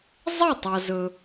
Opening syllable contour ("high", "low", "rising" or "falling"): falling